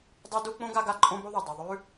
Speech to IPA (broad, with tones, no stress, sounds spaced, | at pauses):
dˤ o˥ d u˥ k͡p õ˥ ɡ a˦ ɡ a˦ ǃʼ õ˦ b o˦ ðˤ e˩ dˤ ɐ˨ ðˤ ʉ˥